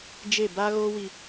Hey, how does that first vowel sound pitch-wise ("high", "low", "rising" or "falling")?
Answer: falling